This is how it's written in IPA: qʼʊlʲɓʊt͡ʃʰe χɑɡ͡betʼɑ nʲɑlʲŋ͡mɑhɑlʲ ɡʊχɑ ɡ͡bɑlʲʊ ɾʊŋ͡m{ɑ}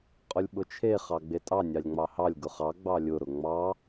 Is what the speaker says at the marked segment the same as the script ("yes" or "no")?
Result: yes